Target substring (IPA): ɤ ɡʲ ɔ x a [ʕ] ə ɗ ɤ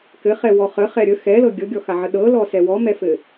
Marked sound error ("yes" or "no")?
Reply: no